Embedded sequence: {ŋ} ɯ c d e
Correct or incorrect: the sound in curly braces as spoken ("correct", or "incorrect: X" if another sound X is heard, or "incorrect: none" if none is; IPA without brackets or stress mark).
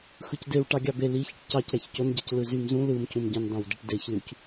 incorrect: x